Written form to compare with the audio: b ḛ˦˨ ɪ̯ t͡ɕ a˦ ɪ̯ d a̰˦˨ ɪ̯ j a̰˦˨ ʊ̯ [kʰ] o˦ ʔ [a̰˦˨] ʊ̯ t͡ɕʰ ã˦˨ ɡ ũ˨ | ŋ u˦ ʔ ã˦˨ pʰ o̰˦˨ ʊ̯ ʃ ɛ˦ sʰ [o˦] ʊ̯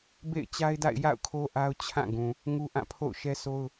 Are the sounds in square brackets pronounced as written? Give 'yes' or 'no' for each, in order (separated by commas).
yes, no, yes